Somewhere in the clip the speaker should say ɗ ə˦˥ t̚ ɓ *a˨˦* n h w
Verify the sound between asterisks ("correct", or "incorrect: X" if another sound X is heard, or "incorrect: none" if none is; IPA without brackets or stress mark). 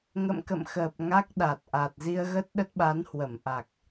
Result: correct